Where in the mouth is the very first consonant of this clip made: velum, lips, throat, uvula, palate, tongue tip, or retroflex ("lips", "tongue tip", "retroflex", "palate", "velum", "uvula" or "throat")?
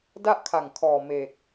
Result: tongue tip